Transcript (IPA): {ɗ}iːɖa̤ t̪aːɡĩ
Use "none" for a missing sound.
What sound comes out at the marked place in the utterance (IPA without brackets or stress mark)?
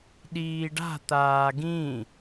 ɗ